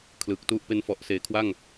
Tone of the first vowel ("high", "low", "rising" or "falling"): low